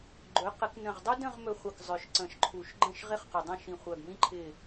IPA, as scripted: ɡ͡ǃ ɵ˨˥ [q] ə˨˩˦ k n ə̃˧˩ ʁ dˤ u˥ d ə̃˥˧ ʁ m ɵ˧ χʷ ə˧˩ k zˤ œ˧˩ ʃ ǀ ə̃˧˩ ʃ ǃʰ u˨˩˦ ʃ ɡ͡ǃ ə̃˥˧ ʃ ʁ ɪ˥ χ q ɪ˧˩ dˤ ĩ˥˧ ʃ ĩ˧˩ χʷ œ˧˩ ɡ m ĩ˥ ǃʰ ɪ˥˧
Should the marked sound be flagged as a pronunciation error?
no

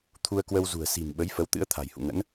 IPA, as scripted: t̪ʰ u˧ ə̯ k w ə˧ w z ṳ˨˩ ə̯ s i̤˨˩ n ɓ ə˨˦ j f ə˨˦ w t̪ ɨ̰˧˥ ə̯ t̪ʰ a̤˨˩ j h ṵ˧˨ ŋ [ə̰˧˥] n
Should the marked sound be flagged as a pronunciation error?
no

